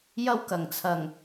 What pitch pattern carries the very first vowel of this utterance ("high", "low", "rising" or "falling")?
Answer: high